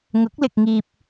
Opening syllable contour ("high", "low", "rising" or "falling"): rising